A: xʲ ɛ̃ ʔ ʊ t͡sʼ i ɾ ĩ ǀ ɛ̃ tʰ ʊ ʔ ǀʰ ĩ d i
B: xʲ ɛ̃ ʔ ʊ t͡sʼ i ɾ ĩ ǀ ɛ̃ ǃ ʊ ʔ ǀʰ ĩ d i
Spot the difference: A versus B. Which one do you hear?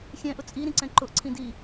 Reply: B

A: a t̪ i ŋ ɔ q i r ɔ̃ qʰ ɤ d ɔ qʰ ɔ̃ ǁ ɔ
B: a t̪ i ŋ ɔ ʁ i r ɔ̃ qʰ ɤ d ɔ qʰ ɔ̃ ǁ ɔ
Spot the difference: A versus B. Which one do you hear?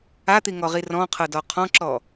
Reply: B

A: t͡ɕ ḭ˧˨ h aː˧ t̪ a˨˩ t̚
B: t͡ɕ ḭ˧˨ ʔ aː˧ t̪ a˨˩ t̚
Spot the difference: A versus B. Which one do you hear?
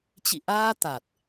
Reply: B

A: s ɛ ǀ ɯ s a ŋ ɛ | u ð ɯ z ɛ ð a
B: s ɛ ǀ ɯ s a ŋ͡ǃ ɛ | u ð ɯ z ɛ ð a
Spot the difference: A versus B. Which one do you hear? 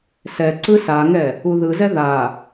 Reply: A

